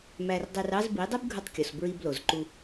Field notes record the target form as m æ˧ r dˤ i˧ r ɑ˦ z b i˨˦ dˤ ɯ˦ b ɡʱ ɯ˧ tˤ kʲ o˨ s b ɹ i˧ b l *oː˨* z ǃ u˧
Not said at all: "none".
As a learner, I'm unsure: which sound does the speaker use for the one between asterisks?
o˨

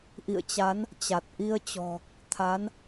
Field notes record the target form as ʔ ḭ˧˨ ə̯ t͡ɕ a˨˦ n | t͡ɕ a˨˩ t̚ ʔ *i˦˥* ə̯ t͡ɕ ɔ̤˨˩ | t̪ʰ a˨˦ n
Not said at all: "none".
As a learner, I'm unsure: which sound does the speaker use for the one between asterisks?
i˧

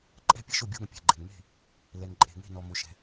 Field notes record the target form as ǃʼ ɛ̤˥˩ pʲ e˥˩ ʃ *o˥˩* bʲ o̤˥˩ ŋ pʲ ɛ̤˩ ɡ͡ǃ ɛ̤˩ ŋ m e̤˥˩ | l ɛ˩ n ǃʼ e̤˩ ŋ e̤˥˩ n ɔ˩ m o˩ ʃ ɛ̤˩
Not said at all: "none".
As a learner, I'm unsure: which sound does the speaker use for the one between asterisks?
o˥˩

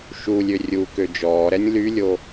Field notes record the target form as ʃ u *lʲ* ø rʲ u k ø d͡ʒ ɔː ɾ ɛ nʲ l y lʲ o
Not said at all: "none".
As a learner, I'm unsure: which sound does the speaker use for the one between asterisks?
lʲ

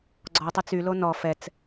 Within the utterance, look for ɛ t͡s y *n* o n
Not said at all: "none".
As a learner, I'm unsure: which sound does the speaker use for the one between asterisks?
l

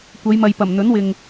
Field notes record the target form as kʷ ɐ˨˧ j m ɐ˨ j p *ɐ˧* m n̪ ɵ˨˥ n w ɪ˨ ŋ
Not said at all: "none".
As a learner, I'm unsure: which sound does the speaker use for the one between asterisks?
ɐ˨˩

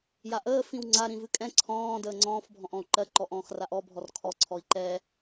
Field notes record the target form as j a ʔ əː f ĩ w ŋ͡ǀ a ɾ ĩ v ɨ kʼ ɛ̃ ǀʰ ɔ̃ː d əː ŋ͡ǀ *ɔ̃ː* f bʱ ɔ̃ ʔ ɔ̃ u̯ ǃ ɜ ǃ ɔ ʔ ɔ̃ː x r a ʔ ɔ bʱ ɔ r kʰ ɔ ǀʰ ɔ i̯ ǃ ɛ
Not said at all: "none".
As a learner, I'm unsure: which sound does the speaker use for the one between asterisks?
ɔ̃ː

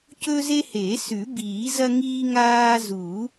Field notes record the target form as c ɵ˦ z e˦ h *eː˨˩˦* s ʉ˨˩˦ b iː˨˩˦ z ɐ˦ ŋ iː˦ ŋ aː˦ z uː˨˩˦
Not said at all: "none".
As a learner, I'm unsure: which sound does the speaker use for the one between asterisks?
eː˨˩˦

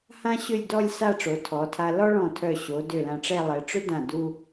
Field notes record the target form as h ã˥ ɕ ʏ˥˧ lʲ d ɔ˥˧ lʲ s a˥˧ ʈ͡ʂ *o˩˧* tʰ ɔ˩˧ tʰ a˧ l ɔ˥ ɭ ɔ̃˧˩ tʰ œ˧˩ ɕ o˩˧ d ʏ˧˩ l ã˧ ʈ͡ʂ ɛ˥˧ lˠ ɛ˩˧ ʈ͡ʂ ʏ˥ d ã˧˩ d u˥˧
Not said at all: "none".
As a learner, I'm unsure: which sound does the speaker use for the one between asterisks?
o˩˧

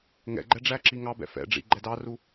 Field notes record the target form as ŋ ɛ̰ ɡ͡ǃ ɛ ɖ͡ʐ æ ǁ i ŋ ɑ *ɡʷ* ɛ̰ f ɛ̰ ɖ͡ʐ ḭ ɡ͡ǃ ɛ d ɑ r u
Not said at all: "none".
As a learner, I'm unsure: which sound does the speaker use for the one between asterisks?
b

